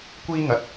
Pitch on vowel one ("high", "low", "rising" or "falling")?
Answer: high